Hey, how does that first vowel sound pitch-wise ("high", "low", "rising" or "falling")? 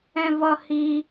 high